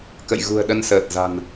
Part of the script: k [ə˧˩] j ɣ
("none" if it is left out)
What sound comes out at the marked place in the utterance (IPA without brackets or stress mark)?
ə̰˧˨